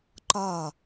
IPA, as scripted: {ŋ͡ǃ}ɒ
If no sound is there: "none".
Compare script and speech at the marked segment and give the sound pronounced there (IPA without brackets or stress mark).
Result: ǃ